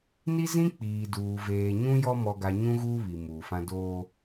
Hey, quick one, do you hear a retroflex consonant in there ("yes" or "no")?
no